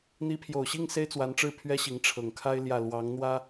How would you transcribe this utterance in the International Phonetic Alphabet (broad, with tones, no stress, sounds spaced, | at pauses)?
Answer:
n̪ i˧˥ pʰ j o˨˩ ʊ̯ ɕ i˥˩ ŋ s e˥ ɪ̯ t͡s w a˧˥ n ʈ͡ʂ ɻ̩˥˩ pʰ ɥ ɛ˥ ɕ i˧˥ ŋ ʈ͡ʂʰ ɤ˨˩ ŋ kʰ a˥ ɪ̯ l j ä˥˩ l w ɑ˧˥ ŋ n̪ w ä˥